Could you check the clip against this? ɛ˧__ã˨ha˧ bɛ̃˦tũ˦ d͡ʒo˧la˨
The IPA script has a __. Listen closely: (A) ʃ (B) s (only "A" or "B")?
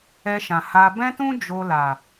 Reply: A